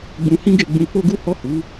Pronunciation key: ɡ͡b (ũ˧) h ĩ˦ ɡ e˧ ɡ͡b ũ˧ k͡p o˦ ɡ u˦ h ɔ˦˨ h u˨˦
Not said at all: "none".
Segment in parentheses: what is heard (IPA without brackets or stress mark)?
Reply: ũ˧